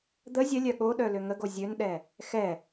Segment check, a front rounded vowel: present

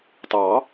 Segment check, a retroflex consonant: absent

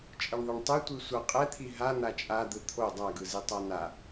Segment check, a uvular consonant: present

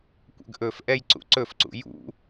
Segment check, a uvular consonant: absent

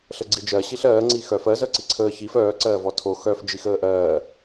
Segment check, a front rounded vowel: present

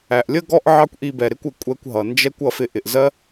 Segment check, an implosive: absent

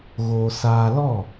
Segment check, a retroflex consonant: absent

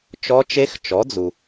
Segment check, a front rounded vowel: absent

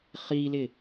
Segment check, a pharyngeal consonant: absent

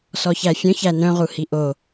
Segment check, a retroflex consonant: absent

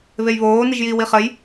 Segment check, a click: absent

